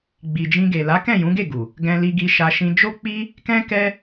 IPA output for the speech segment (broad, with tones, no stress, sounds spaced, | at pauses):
ɡ͡b i˨ d͡ʒ ĩ˧ ɡ e˨ l a˨˦ k ɛ̃˦˨ j ũ˨˦ ɡ e˦˨ ɡ u˨ | ɡ ɛ̃˧ l i˧ ɡ i˧ ʃ a˦ ʃ ĩ˦ d͡ʒ o˦ k͡p i˦ | k ɛ̃˦ k ɛ˦